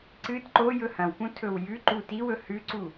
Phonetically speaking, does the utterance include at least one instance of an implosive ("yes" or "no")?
no